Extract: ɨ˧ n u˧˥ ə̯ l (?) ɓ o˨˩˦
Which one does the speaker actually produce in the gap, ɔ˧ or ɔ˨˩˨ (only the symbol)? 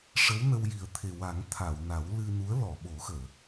ɔ˨˩˨